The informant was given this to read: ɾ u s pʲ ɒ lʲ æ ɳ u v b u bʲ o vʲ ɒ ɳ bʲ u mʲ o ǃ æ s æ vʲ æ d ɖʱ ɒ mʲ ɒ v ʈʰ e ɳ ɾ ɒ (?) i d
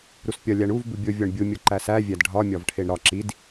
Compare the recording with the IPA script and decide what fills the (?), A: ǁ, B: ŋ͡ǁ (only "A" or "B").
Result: A